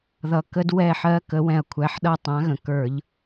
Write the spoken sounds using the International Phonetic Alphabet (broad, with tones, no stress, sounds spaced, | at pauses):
ð ʌ˧ k ə˦˥ d w ɛ˥˨ ħ ɜ˦˥ k ə˨˥ w ɛ̃˧ ɐ̯ kʷʰ æ˨˥ ħ ɗ ʌ˥˨ tˤ ã˨˥ ɣ ə̃˩˧˩ k ə˞˧˩˧ ʎ